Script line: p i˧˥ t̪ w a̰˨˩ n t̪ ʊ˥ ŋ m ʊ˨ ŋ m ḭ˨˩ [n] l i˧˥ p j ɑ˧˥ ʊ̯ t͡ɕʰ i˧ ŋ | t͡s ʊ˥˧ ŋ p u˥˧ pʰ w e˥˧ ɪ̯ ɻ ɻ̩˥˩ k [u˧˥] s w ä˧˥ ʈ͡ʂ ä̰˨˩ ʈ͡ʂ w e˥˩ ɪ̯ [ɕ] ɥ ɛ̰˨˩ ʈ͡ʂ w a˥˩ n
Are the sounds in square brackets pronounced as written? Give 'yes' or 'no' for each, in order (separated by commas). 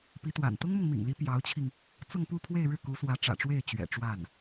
no, yes, no